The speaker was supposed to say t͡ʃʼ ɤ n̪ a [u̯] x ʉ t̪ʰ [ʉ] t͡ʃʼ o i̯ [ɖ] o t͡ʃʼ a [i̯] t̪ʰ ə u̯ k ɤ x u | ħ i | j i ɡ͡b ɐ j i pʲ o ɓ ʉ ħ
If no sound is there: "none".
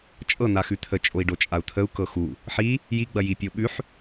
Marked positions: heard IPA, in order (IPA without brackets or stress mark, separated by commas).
none, ə, ɖ, u̯